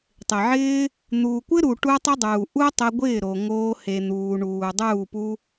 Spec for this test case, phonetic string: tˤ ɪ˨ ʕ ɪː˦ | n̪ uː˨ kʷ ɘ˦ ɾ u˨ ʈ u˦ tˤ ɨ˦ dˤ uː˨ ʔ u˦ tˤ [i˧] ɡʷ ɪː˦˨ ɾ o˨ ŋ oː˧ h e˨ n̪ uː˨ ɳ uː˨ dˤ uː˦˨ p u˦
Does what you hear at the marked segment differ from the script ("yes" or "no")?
yes